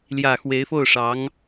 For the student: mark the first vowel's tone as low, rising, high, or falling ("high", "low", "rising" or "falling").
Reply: low